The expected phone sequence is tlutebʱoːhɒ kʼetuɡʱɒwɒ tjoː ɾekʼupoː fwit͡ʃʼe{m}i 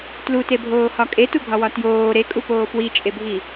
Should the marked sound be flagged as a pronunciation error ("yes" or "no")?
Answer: yes